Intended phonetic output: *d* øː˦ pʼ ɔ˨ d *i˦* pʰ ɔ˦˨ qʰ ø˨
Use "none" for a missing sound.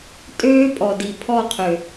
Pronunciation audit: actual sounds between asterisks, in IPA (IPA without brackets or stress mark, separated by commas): tʼ, i˨